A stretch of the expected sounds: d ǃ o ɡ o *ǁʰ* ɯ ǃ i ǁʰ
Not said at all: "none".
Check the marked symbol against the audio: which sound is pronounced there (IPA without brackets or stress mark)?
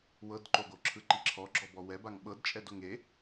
ǁʰ